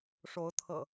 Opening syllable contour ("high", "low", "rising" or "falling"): rising